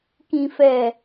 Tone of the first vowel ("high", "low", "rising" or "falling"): low